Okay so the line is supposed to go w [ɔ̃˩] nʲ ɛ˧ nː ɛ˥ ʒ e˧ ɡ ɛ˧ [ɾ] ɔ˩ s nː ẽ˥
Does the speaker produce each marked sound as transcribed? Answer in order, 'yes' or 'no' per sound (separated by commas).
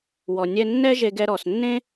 no, yes